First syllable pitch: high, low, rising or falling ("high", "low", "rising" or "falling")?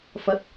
rising